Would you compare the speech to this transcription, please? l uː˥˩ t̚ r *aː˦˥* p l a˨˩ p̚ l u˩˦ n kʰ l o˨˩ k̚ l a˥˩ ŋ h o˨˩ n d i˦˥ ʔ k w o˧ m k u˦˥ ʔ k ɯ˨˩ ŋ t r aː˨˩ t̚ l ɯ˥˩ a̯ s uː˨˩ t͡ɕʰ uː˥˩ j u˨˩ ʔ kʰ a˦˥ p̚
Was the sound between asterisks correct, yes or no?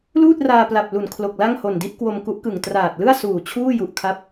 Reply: no